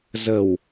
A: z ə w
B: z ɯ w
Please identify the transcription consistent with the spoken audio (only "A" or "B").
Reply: A